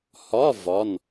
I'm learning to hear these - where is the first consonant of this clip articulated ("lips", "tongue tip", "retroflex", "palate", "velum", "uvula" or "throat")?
throat